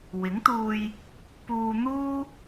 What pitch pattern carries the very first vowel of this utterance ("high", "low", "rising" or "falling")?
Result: rising